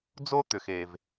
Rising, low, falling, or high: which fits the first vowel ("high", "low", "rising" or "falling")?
high